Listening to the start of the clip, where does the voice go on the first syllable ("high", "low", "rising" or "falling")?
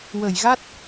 low